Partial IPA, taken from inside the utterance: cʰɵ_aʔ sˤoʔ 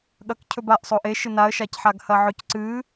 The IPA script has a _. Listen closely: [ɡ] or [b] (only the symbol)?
b